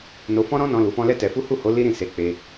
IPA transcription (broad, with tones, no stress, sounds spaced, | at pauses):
n o˧ f ɔ̃˦ ɾ ɔ̃˦ n ɔ̃˧ l u˨ f ɔ̃˧ l ɛ˦ t ɛ˧ f u˦ h u˦˨ h o˨˦ l i˦ ɾ ĩ˦˨ s e˨˦ k͡p e˧